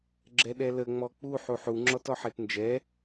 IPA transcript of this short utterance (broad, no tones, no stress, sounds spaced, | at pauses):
ɡ͡ǁ ɛ ɗ ɛ l ə ŋ͡m ɔ k͡p u ħ u ħ u ŋ͡ǁ ɔ t ɔ ħ e t n d͡ʒ ɛ